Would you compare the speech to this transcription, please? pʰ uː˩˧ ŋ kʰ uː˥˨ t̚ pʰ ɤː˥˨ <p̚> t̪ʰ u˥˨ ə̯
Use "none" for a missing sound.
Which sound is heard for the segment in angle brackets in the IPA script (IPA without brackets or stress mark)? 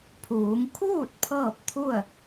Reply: p̚